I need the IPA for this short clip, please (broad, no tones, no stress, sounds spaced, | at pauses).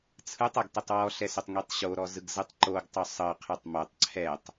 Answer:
t͡sʰ ɯ tˤ a ɡ t ɛ tˤ w ɔ ɬ ɛ s o tˤ ŋ i tˤ ɕ o ɾ ɔ z ɯ ɡ z ɯ tˤ ǃ o ɡ tˤ o sˤ ɤ qʰ ɯ tˤ m o tˤ ǀʰ ɛ tˤ